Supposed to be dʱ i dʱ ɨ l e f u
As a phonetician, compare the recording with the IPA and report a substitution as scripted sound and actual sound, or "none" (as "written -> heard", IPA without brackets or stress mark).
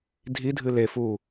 none